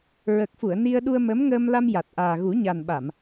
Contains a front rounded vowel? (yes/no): no